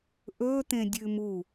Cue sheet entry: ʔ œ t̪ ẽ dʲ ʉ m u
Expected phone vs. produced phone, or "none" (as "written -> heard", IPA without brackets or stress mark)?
œ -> ɵ